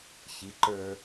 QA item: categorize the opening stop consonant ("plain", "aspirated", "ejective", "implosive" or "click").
click